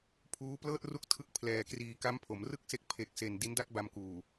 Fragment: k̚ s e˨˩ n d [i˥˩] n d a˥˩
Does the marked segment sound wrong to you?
yes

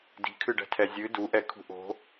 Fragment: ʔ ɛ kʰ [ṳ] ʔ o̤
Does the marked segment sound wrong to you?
no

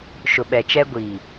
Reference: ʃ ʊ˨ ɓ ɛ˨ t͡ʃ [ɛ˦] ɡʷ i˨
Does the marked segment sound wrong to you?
no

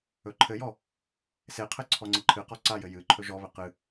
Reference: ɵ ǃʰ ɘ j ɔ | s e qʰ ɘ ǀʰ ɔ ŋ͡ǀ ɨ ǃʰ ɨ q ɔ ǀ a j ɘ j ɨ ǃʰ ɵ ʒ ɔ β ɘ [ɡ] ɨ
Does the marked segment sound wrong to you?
yes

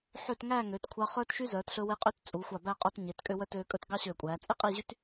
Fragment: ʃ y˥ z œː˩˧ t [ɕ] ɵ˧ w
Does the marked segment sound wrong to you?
yes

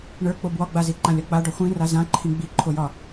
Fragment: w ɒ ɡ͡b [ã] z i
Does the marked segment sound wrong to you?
yes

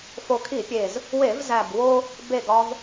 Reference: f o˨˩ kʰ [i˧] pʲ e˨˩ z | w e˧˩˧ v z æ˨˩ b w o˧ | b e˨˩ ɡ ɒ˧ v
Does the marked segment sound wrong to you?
yes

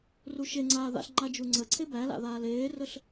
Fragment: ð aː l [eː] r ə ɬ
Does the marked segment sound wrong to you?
no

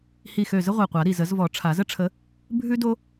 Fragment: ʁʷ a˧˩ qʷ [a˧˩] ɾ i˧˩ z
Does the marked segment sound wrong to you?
yes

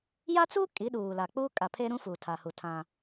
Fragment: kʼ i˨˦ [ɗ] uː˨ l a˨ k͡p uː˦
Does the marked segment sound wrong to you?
no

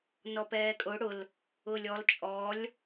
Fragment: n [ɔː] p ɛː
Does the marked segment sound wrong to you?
yes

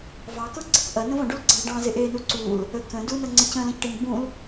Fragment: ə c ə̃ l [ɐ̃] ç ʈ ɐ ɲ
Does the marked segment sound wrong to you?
no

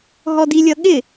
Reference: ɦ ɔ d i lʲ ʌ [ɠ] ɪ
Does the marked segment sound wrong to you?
no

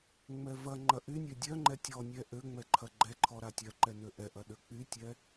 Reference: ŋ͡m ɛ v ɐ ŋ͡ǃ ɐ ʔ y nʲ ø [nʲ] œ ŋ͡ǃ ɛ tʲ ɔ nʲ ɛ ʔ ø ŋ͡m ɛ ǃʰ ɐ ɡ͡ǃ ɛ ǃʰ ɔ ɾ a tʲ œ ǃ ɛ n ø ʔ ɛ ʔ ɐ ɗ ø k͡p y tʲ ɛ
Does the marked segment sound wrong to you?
yes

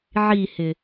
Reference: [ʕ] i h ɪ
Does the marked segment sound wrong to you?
no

